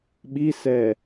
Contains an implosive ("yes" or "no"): yes